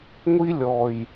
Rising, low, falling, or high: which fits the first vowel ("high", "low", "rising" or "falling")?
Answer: high